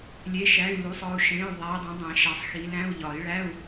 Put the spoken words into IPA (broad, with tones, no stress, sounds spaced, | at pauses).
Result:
lʲ e˧˥˧ ʃ æ˧˥˧ y̯ l u˧˥˧ sˤ ɒ˧˥˧ u̯ ʃ ẽ˧˥˧ y̯ ðˤ æ˨˦ i̯ dˤ ẽ˨˦ dˤ ẽ˨˩˦ ʃ æ˨˦ sˤ x i˨˦ l ɾ æ̃˧˥˧ u̯ ʎ ɒ˨˩˦ i̯ ɭ æ˧˥˧ u̯